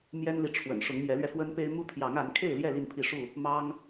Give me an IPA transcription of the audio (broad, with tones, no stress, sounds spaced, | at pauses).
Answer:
m j ɛ˦ n l i˨ ʈ͡ʂʰ w ə̰˨˩ n ʂ ʊ˨˦ ŋ m j ɛ˨˦ l ɥ ɛ˧ f w ə˦ n p e˦ ɪ̯ m u˦ t̪ʰ j ɑ˨˦ ŋ a˨˦ n kʰ e˥˨ ɪ̯ l j ɛ˥˨ l i˥˨ n pʰ i˥˨ ʂ u˥˨ | m ɑ˦ ŋ